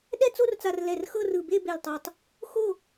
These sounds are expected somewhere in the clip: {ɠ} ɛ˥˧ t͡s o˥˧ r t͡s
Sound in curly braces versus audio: incorrect: ɗ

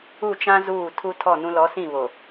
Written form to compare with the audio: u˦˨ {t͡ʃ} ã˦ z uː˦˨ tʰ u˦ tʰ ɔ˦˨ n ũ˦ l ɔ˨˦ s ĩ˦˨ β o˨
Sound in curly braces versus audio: correct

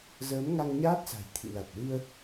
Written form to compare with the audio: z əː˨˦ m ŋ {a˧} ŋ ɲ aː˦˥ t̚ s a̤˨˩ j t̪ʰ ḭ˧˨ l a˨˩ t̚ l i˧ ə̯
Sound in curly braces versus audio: correct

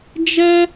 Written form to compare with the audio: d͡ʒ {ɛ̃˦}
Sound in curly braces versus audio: incorrect: ɛ˦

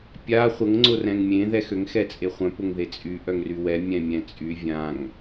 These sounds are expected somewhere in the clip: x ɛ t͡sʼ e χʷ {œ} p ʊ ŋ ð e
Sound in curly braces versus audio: incorrect: œ̃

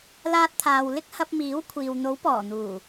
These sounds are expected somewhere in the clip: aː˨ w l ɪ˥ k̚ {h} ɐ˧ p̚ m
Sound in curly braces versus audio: correct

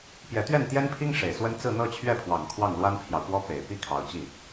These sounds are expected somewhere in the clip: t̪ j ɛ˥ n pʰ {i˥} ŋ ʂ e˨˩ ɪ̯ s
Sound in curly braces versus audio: correct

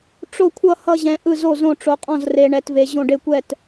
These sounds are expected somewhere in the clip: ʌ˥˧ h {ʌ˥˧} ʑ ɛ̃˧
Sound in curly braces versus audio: correct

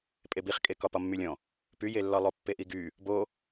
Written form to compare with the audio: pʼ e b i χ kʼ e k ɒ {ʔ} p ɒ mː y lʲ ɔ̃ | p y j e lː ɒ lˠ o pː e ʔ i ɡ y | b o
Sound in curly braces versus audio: incorrect: none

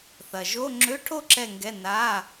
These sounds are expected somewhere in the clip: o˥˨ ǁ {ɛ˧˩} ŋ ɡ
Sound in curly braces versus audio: correct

